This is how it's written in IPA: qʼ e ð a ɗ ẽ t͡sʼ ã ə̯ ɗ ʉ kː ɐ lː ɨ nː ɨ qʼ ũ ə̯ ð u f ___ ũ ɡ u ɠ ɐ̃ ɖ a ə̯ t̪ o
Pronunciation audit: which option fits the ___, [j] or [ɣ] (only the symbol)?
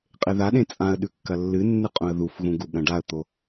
ɣ